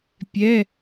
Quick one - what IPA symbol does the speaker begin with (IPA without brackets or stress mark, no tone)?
pʲ